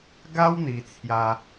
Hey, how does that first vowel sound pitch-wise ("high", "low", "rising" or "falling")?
high